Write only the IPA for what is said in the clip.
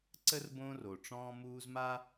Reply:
ǀ ə˥ r b õː˦ r o˩ ʈ͡ʂ ɔ̃ː˦ m uː˦ z m a˥

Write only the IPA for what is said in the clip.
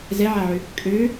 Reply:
z ɛ ʕ a ʕ ʏ | kʼ ø

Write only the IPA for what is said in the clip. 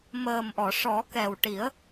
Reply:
m əː˨˩ m ʔ ɔ˨˩˨ ʂ ɔ˨˩˦ k ɛ˨˩ w ʈ i˨˩˦ ə̯

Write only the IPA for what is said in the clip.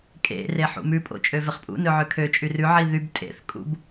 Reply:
kʼ ḛ r e ħ ṵ m ʉ pʼ o̰ t͡ʃʼ ø v e χ pʼ ṵ n ɵ ʕ ø kʰ ø t͡ʃʼ y r ʉ ʕ i ð y b tʼ ḛ θ kʼ ṵ b

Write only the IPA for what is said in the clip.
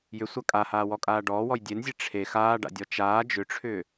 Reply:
j ʏ sʷ a kʼ a h aː w ɔ kʼ aː ɖ ɔː w ɔ j dʲ e n zʲ e ʈ͡ʂʰ e x aː ɖ a̰ dʲ ɔ t͡ʃ aː d͡ʒ ʏ ʈ͡ʂʰ ʏː

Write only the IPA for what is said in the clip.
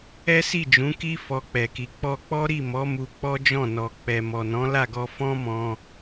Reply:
ɛ˦ s i˦˨ d͡ʒ ũ˨˦ k i˦ f ɔ˧ k͡p ɛ˨ k i˨ k͡p ɔ˧ k͡p ɔ˦ ɾ i˦˨ m ɔ˨˦ m u˧ k͡p ɔ˦ d͡ʒ ɔ̃˦˨ n ɔ˨ k͡p ɛ˨ m ɔ˨ n ɔ̃˨˦ l a˦˨ ɡ ɔ˧ f ɔ̃˦ m ɔ̃˧

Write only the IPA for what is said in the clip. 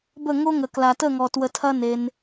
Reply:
b ə˦˨ ŋ o˦ ŋ ə˨ k l a˨ t ə˦˨ ŋ ɔ˨ t w ə˧ tʰ ɐ˦ n e˧ n

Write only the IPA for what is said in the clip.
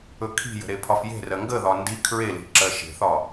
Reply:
ɵ kʰ i̤ j ə̤ ɾ e pʰ ɒ f j e̤ r ɜ ŋ ɡ ə ð ɒ n d i kʰ ɹ e l i̤ ǁ ɜ ʃ e̤ θ ɒ

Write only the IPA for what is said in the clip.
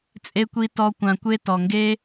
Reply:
t͡sʼ e˧ kʷ i˧ t ɔ˧ kʷ ã˨ kʷ e˧ t ɔ˨ ŋ ɡ e˦

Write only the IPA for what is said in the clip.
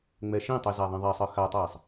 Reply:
ŋ͡m ɛ ʃ ĩ tˤ ɯ z a ðˤ ĩ ðˤ ɛ sˤ ɯ x a tˤ ɛː sˤ

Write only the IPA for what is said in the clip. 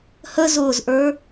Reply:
h ə z ʊː z ʔ ə˞

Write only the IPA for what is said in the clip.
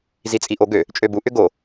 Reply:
z i t͡sʼ i ʔ o ɡ ø | t͡ʃʼ ø b u ʔ ʏ ɡ o

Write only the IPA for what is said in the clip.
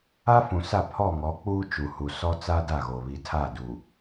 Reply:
a˦ f ũ˨ s a˦˨ pʰ ɔ˦˨ ŋ ɔ˨˦ k͡p uː˦ t͡ʃ u˨ h u˨ s ɔ˦ t͡s a˦ d a˦˨ ɣ o˨ β i˨ tʰ a˦˨ d u˨

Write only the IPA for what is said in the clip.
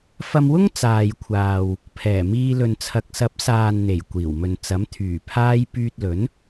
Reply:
f ɐ˧ m w ʊ˥ ŋ t͡s aː˨ j kʷʰ aː˨ w | pʰ ɛː˨˩ m iː˧ l ɵ˨ n t͡sʰ ɐ˨ k̚ s ɐ˨˥ p̚ s aː˨ n n̪ e˨˩ j kʷ iː˨˩ w m ɵ˨ n t͡s ɐ˨˥ m t̪ʰ yː˨˩ pʰ aː˥ j p yː˧ t̚ l ɵ˨˥ n

